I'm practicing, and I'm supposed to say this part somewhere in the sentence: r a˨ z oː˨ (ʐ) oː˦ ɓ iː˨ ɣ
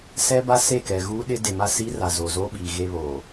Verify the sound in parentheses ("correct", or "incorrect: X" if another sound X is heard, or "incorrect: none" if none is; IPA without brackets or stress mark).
incorrect: z